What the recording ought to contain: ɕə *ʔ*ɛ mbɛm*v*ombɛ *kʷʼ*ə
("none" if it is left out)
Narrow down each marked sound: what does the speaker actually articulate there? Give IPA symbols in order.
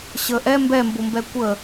ʔ, b, kʷ

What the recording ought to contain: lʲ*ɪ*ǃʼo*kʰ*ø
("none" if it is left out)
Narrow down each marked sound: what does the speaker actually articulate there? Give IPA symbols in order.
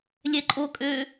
ɛ, kʼ

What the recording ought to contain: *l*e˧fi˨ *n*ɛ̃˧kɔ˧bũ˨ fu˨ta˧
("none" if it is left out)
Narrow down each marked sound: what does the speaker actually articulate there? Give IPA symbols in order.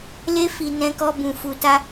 l, n

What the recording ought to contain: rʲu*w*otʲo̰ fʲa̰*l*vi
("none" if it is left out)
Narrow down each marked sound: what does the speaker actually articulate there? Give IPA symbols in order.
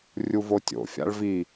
v, ɭ

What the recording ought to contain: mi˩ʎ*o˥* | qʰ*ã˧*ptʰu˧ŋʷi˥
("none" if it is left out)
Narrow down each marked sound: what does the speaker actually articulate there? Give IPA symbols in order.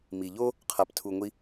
o˥, a˧

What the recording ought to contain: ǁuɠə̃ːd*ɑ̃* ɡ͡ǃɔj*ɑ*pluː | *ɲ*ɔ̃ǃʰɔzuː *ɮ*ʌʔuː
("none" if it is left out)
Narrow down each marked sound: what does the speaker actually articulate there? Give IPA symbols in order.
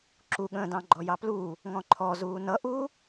ɑ̃, ɑ, ŋ, n

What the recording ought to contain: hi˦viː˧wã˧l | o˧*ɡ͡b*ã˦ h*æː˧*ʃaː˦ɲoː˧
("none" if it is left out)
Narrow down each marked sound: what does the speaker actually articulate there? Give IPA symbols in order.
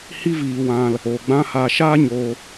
ɡ͡b, aː˧

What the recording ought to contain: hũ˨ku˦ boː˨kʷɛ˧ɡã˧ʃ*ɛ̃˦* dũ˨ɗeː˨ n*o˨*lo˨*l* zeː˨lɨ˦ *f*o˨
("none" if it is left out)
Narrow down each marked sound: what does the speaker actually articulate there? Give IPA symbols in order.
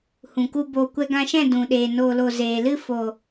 ɛ̃˦˨, oː˨, none, f

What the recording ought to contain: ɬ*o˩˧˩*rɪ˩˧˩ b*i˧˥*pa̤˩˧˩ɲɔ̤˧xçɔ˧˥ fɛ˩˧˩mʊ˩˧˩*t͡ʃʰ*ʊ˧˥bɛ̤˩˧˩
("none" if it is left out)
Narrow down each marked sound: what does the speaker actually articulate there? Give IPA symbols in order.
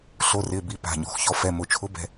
o˩˧˩, i˧˥, t͡ʃʰ

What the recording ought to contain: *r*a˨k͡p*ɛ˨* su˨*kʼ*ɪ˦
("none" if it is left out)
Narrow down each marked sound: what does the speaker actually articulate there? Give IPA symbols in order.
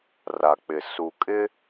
r, ɪ˨, kʼ

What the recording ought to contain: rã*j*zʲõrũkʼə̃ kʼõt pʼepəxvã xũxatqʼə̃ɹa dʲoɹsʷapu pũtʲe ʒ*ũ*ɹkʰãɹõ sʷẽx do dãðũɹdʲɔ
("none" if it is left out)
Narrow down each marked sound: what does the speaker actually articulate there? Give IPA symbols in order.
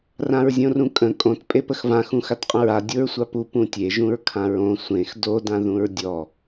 ɹ, ũ

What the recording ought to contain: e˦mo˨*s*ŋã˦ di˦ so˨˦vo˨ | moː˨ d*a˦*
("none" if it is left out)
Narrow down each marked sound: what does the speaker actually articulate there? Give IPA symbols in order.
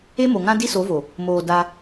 none, a˦

